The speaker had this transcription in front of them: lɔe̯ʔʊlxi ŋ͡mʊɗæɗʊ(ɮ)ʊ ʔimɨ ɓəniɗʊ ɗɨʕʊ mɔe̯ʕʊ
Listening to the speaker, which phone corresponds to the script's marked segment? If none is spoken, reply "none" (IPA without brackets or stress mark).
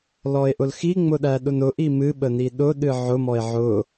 n